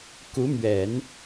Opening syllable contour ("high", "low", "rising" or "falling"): rising